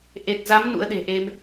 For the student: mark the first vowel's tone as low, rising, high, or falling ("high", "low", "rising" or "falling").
low